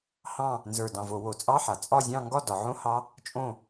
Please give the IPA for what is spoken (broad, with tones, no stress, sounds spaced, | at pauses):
h ɑ̃˥˨ | n z ə˞˧˩ d ɑ̃˧˩ v o˧˩˧ w o˩˧ t͡sʼ ɑ˧˥˧ ħ a˩˧ t͡sʼ ɒ˥˨ zʲ ɑ̃˥˨ ŋ ɡ ɒ˥˨ d ɒ˩˧ ʕ õ˧˥˧ h ɑ˦˥ | t͡ʃʼ õ˥˨